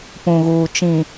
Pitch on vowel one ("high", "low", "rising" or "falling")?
low